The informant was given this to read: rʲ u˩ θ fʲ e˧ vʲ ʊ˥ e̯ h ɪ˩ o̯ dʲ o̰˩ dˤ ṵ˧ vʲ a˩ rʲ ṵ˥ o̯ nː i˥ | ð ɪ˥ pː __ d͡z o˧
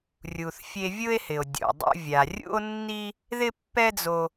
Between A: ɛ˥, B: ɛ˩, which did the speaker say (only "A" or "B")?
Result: A